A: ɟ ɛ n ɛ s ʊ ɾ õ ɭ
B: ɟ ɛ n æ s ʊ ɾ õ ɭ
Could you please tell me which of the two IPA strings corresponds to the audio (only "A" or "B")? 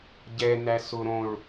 B